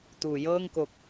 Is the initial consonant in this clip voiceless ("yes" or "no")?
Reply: yes